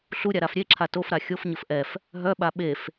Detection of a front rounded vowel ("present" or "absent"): present